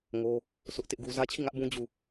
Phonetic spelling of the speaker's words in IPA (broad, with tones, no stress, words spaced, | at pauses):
ŋo˦ | sʰʊ˦ʔtɪ˦ʔɡu˦ zä˦t͡ɕʰi˦˨ŋä˦ʔbũ˦ d͡ʑu˦˨